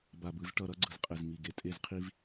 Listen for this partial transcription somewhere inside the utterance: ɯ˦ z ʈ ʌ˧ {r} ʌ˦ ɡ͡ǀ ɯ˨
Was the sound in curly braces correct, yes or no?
no